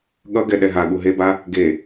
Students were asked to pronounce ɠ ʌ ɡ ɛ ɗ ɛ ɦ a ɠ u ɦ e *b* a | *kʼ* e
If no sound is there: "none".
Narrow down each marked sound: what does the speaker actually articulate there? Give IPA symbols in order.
b, ɡ

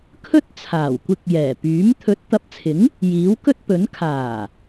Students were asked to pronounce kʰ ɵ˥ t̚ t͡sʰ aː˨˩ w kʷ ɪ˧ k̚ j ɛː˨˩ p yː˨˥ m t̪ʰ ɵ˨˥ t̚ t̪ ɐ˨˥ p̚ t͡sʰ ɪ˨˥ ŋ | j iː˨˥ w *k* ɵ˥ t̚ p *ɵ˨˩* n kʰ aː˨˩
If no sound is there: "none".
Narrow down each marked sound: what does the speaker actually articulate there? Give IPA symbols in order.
k, ɵ˨˥

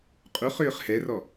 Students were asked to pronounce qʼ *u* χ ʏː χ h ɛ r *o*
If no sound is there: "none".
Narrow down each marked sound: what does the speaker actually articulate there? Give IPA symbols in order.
u, ɔ

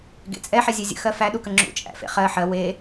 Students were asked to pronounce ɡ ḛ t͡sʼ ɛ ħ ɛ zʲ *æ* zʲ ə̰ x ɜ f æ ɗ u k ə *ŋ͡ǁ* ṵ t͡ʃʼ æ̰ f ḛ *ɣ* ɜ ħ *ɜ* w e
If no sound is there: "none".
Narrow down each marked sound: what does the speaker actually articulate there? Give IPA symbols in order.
ɛ, ŋ͡ǁ, χ, ɜ

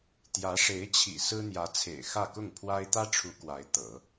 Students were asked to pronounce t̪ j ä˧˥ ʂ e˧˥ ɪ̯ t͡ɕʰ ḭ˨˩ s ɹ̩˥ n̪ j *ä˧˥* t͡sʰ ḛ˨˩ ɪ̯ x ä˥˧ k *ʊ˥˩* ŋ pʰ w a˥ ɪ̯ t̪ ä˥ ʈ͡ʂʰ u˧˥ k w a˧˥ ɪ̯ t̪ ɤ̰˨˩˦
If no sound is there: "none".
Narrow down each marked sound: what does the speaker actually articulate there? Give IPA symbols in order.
ä˧˥, ʊ˥˩

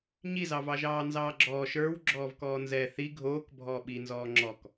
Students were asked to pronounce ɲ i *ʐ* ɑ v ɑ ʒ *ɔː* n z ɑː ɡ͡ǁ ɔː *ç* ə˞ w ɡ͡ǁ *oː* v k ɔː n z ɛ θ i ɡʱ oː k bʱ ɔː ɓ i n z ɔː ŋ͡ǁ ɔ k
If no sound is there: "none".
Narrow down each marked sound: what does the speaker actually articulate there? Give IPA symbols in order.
z, ɑː, ʃ, ɔː

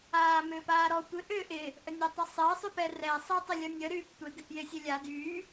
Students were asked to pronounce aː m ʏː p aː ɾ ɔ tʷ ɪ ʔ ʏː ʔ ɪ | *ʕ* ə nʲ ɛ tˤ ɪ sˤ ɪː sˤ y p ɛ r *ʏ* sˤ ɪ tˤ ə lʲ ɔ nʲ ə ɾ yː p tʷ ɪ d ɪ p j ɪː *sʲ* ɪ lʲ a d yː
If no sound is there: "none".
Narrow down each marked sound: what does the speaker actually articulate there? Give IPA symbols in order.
ʔ, ɛ, sʲ

